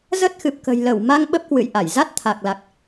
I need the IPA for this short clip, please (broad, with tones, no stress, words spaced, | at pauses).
zə˦˥t̚xɨ˨˩p̚kə̤˨˩jlə˧˩w ma˧ŋ ɓə˦˥p̚kwɨ̰˧˨jʔa˧˩j za˦˥t̚t̪ʰa˨˩k̚la˨˩k̚